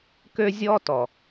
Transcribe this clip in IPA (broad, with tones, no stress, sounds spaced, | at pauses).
k ø˦ zʲ ɔ˦ t ɔ˨